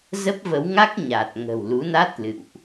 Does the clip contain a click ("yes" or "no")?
no